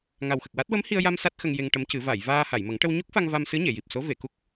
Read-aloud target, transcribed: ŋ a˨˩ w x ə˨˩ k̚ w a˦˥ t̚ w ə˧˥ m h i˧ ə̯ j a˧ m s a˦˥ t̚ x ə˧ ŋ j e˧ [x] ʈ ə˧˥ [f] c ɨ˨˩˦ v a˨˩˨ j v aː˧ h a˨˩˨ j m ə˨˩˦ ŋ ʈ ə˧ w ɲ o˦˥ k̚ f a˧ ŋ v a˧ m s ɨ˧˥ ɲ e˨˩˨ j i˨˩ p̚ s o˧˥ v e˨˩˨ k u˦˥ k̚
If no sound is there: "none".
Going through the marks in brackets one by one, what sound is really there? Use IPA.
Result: ŋ, m

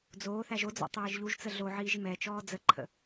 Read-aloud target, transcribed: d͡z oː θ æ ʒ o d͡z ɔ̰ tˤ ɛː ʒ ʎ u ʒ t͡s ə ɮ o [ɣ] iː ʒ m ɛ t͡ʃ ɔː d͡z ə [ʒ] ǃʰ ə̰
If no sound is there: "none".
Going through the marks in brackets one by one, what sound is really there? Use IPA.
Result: ʕ, none

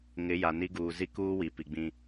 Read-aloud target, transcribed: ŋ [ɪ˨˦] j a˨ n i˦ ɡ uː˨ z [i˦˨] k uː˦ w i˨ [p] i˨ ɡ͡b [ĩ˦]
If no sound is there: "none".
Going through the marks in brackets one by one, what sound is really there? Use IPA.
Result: ɪ˨˦, i˦, p, ĩ˦

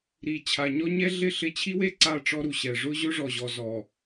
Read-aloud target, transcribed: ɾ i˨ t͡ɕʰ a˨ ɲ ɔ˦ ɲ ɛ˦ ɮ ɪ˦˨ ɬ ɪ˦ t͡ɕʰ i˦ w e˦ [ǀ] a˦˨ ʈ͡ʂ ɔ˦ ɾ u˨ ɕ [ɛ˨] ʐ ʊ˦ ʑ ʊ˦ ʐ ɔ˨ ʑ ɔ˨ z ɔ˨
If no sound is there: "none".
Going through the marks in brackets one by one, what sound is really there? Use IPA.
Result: ǀ, ɛ˨

